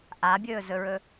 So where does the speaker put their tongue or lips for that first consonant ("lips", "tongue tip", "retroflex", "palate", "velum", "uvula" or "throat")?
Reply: throat